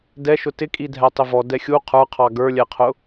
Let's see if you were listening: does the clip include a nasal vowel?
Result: no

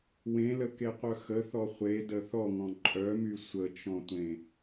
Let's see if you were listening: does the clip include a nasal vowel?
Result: yes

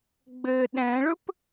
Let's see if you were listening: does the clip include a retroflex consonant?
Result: yes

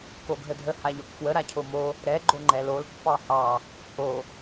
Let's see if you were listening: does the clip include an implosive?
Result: no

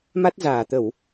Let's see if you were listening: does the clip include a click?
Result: no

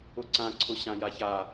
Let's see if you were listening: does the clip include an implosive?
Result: no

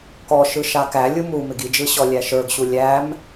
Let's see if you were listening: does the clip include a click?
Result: no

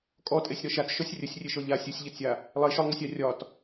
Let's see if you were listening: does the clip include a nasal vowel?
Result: no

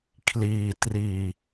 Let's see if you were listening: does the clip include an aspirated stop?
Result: yes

